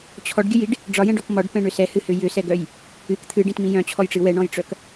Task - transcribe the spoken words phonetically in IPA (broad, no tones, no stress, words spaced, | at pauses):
t͡ɕʰɔɖɡʲɨjiɖ | ɖ͡ʐɒjɛ̃ɖɔk mɒɖpɛ̃ɳʏ sɛhɨhʏ jʏsɛɡœj | ɨk t̪ʰɨɖĩtmĩ jœ̃t͡ɕʰɔjʈ͡ʂɨ wɛɳɔ̃jʈ͡ʂœk